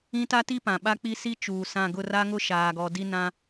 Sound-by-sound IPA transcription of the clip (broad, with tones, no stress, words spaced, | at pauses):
ĩ˦ta˦ti˦ pã˨ɓa˦k͡pi˦ si˦t͡ʃuː˨sã˦˨ ɡʊ˦˨ra˦ŋʊ˦ ʃaː˨ɡɔ˨ di˦ nã˦